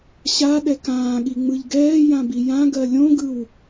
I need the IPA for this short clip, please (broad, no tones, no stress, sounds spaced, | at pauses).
ɕ a ɗ ɛ k ãː ɠ i ŋ͡m ɯ ʎ ɡ ɛː j ã b i j ã ɡ ɜ lʲ õ ɡ ɯ w